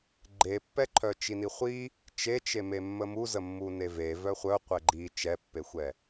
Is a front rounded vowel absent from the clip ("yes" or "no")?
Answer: no